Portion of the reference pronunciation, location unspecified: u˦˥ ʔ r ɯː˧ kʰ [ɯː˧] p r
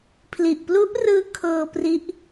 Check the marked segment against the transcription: incorrect: ɤː˧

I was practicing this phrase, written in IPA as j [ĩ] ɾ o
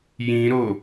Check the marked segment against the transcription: correct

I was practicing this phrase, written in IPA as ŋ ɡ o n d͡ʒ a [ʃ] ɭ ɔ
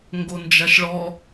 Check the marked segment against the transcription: correct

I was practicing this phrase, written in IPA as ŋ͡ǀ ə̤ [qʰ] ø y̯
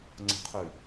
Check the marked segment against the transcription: correct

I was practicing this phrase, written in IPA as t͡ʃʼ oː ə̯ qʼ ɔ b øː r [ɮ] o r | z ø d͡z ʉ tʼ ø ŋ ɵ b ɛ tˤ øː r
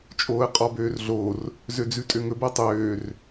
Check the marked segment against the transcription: correct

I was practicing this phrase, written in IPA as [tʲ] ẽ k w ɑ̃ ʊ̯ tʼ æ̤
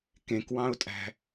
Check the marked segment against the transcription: incorrect: k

